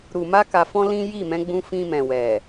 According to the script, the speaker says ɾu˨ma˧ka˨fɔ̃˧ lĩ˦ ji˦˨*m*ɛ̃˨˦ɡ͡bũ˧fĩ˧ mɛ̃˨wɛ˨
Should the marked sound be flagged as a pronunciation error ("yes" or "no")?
no